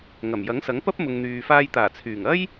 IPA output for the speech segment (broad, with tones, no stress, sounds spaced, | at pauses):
ŋ ɐ˨˩ m j ɐ˨˥ ŋ s ɐ˨˥ ŋ p ɐ˥ p̚ m ʊ˨ ŋ n̪ yː˨ f aː˧ j t̪ aː˨˩ t͡sʰ yː˨˩ ŋ ɐ˥ j